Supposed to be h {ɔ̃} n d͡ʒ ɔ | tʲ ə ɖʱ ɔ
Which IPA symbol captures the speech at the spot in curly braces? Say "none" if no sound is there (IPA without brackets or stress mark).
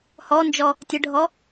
ɔ